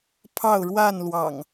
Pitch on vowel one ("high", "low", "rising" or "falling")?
falling